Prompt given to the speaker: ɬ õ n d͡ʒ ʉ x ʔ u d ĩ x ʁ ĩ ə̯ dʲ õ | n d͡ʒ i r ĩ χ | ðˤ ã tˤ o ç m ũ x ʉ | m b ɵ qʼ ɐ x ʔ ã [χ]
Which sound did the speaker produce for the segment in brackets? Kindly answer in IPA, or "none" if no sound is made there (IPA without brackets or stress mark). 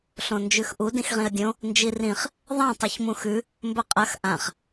χ